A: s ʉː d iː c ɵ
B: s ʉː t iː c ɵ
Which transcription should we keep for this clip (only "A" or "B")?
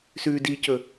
A